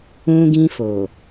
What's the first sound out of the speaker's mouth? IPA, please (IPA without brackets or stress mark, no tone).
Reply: ũ